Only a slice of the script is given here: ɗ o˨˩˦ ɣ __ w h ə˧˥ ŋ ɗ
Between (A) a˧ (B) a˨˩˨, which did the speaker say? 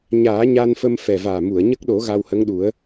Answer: A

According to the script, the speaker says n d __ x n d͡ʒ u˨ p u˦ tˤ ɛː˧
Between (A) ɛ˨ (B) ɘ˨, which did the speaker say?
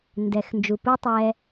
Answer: A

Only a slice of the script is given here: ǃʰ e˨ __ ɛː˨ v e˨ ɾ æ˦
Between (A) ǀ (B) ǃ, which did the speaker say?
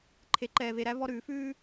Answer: B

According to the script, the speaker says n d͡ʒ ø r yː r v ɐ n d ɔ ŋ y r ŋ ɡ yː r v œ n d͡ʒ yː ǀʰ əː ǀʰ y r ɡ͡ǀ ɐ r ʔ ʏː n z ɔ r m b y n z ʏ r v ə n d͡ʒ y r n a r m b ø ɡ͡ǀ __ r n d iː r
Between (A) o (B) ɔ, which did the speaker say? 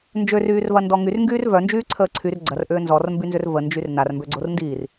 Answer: A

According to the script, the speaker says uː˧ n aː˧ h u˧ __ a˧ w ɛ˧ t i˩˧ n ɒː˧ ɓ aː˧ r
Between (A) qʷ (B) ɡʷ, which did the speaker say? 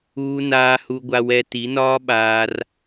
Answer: B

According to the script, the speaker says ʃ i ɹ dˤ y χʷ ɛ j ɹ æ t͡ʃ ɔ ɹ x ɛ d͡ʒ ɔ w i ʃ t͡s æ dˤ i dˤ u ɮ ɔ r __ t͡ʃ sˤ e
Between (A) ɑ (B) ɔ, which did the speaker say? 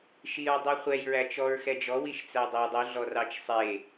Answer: A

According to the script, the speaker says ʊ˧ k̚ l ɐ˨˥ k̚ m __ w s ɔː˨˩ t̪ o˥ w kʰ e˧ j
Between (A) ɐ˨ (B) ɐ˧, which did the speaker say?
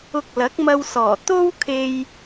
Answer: B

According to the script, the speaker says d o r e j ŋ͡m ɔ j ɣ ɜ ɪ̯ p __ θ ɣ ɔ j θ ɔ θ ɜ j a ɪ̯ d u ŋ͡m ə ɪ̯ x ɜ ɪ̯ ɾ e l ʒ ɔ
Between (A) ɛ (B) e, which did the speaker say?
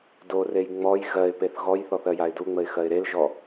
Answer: B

